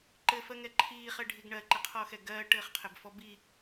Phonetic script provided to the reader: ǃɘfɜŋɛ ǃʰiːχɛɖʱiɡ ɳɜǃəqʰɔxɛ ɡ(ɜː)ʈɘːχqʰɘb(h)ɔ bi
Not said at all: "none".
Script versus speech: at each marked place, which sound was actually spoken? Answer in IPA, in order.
ɜː, f

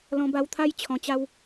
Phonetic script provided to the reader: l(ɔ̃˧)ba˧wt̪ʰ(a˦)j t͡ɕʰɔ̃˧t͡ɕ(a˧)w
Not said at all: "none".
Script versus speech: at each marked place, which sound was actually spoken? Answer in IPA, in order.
ɔ̃˧, a˦, a˦

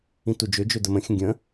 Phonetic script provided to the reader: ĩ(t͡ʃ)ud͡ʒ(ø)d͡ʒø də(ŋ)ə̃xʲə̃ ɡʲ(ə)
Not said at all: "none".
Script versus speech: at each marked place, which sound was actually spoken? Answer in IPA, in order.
t, ø, m, ə̃

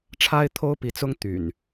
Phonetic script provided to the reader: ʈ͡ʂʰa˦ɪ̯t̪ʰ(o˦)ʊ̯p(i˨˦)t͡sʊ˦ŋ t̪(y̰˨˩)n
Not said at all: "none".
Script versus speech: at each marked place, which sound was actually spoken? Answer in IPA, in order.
o˦, i˨˦, y̰˨˩

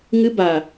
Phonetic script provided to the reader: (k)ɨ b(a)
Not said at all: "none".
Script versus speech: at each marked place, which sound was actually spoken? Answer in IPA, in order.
ŋ, a

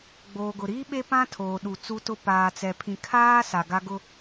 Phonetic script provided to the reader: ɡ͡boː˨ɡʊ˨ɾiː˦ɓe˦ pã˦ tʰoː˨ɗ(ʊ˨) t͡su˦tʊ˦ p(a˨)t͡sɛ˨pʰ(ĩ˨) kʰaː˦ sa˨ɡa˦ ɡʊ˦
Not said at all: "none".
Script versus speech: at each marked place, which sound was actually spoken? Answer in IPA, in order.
u˨, aː˨, ĩ˨

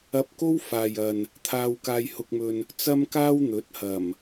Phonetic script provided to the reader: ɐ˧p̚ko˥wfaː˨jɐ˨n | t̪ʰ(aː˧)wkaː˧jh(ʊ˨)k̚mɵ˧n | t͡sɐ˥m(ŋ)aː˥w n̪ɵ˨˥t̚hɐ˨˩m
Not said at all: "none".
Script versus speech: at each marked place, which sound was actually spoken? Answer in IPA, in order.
aː˧, ʊ˧, k

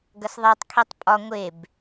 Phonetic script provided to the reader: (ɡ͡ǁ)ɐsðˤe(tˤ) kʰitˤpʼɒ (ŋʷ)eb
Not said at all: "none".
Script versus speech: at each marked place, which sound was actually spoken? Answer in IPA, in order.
ɡ, tˤ, ŋʷ

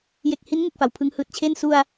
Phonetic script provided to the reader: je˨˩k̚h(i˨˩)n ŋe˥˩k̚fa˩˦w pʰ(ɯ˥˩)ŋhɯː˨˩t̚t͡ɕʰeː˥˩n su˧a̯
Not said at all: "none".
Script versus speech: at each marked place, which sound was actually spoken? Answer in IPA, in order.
i˦˥, ɯ˦˥

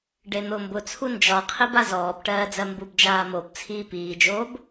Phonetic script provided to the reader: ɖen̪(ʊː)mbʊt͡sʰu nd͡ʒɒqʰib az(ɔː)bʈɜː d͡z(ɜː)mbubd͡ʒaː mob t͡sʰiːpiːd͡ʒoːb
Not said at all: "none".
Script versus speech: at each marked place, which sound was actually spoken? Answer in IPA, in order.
ʊː, ɔː, ɜ

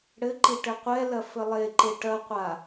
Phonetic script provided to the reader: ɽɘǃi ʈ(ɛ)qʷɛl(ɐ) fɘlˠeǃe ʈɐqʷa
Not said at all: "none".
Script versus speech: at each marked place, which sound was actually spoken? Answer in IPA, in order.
ɘ, ɐ

